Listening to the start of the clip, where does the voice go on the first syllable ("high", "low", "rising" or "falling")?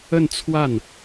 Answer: falling